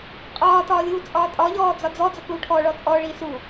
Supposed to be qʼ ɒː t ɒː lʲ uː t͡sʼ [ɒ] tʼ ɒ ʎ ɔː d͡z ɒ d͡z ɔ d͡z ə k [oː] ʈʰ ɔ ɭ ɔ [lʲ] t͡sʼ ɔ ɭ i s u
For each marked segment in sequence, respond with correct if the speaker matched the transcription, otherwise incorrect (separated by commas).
incorrect, incorrect, incorrect